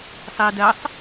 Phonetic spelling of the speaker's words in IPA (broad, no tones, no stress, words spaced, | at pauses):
sˤiːdɜsˤ